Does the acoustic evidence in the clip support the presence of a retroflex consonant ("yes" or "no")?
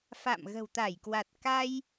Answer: no